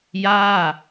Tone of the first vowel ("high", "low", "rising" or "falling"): falling